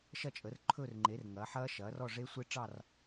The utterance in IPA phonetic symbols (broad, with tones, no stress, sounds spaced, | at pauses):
ʃ ɐ˥˨ t͡ʃʼ əː˩˥ r ǃʰ ɵ˥˨ r ŋ͡ǃ e˩˥ r ŋ ɐ˩˥ ħ ɐː˦˥ ʃ ɐː˩˥ r ɔ˥˨ ʐ e˦˥ sʷ e˦˥ ʈ͡ʂ ɑ˥˨ r